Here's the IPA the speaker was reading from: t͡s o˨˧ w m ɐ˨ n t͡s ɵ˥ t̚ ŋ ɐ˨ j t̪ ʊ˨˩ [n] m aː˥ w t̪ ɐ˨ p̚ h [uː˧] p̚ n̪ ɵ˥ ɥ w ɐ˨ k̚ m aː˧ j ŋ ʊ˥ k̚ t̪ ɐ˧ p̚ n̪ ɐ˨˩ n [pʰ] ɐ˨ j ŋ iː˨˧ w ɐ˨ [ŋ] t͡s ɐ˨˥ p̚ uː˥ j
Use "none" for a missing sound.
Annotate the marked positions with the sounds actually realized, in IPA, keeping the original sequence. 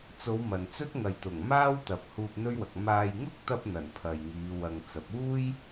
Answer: ŋ, uː˧, pʰ, ŋ

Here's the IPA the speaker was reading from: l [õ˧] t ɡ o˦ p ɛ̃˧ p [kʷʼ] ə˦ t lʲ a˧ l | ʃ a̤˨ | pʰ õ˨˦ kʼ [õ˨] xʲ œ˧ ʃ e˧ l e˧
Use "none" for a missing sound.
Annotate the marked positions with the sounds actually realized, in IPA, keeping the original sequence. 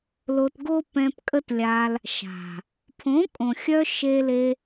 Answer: o˧, kʼ, õ˨

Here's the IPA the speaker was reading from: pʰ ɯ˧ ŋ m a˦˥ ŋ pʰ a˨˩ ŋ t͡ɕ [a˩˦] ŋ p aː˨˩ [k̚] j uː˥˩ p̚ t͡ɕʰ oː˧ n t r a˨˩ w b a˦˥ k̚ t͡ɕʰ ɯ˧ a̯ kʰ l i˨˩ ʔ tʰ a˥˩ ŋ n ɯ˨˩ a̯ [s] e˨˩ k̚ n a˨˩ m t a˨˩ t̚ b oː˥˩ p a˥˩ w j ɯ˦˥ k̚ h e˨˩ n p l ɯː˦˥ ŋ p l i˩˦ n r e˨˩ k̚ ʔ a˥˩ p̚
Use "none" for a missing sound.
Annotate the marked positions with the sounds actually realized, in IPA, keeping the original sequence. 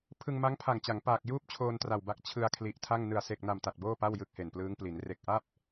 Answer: a˩˦, k̚, s

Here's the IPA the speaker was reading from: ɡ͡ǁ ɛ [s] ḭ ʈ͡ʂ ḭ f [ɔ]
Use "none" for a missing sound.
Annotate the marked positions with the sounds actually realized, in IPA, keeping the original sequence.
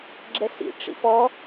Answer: s, ɔ

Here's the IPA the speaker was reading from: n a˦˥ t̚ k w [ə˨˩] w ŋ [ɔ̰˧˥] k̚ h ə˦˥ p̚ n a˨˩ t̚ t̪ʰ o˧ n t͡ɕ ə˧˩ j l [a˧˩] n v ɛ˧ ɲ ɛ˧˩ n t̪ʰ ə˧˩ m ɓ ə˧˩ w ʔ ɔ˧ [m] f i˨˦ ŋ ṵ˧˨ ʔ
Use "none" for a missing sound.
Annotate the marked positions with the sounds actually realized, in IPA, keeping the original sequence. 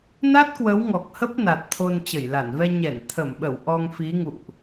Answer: ə˨˦, ɔ˨˩, a˧˩, ŋ

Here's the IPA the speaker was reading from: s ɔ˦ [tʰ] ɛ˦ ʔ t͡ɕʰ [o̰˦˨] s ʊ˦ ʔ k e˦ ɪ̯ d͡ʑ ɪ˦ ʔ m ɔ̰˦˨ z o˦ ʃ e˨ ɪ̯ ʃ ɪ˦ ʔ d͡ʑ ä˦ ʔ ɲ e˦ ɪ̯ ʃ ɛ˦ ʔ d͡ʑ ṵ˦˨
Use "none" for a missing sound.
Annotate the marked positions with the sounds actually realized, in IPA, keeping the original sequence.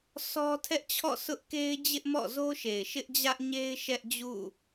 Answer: tʰ, ɔ̰˦˨

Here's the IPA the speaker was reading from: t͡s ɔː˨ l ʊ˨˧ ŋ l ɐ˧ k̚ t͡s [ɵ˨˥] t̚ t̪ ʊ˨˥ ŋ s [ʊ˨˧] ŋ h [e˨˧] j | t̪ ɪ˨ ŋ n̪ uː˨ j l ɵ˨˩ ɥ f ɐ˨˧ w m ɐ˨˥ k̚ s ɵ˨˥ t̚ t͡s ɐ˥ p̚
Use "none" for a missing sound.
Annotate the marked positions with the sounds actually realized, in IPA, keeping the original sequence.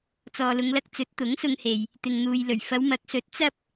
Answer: ɵ˨˥, ʊ˧, e˨

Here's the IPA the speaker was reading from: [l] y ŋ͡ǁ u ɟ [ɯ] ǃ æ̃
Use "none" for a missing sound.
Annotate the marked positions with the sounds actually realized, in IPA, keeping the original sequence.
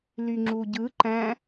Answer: l, ɯ

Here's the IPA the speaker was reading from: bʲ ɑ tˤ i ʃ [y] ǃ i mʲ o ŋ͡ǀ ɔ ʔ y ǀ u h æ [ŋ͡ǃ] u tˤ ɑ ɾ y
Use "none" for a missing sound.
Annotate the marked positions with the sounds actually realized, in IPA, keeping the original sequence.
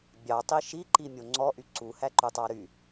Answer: i, ǃ

